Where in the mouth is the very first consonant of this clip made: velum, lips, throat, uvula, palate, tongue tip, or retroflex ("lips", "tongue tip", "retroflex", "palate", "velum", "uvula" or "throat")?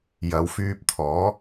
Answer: palate